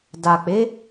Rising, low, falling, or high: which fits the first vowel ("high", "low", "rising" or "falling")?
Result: low